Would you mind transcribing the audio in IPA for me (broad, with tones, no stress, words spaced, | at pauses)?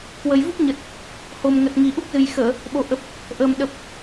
kwə˨˩jvu˦˥p̚ɲə˨˩t̚ | ho˨˩m ŋə˨˩t̚ŋi˨˩ ʔu˦˥k̚zɨ˨˩jxəː˧˩˨ | ɓo˨˩ʔə˨˩p̚ | ʔəː˨˩m ɗə˨˩p̚